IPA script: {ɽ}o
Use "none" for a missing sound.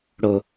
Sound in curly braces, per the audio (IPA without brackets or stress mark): ɽ